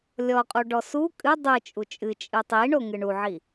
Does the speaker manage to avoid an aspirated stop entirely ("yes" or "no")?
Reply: yes